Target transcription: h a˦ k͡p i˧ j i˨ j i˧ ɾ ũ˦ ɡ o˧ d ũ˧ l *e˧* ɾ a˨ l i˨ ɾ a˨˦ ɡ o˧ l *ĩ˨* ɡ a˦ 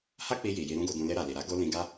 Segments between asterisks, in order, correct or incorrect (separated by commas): correct, incorrect